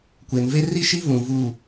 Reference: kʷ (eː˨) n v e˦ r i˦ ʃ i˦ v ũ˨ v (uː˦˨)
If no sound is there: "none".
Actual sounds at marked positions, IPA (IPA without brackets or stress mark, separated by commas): e˨, uː˦˨